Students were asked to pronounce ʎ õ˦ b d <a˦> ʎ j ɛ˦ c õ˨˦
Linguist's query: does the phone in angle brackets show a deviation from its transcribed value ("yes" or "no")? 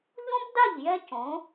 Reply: yes